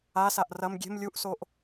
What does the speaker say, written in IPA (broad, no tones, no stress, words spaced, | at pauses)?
asaʔ rɐm ɡʲe̤m lʲuʔsoʔ